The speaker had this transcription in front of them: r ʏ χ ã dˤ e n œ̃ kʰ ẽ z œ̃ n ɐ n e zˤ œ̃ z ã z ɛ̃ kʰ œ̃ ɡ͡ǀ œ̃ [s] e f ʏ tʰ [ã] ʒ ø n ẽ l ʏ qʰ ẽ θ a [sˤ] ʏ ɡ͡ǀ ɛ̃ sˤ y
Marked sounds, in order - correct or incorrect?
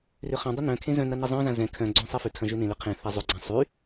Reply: incorrect: sˤ, incorrect: ɐ̃, incorrect: zˤ

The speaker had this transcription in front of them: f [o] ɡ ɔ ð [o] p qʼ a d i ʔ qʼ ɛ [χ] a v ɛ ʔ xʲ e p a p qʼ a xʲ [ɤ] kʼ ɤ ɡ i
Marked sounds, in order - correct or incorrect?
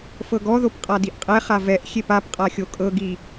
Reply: incorrect: ɤ, correct, correct, incorrect: o

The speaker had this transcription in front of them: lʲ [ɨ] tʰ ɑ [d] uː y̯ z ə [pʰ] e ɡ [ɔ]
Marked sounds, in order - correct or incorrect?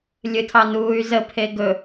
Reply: correct, incorrect: n, correct, incorrect: ɵ

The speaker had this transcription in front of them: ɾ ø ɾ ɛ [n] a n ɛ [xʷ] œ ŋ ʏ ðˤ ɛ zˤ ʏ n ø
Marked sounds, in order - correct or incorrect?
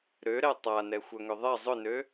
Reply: incorrect: tˤ, correct

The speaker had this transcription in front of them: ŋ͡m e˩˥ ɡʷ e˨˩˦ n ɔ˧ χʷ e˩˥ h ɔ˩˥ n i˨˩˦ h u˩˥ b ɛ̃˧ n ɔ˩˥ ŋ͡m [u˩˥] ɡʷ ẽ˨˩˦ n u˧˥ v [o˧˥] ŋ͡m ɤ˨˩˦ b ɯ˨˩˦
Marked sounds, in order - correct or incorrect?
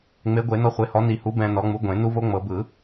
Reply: correct, correct

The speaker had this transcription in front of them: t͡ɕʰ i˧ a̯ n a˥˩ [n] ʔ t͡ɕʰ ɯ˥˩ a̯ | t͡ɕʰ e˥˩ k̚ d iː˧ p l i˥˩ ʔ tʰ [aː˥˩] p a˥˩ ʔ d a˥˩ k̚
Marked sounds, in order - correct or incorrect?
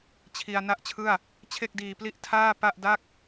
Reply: incorrect: none, correct

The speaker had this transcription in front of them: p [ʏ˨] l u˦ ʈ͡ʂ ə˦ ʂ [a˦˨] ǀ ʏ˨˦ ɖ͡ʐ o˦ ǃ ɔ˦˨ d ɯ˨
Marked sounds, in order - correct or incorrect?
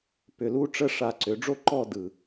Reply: correct, incorrect: a˧

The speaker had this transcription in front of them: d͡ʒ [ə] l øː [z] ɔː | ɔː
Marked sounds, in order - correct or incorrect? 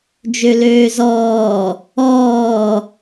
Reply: incorrect: ø, correct

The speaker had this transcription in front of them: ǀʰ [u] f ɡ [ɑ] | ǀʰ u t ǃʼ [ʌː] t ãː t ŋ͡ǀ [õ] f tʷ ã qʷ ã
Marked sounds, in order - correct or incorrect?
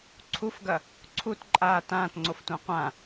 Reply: correct, incorrect: ɐ, incorrect: aː, incorrect: o

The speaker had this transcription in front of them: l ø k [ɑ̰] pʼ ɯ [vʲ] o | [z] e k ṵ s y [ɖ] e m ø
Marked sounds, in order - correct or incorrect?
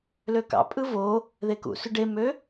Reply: correct, incorrect: v, incorrect: ð, correct

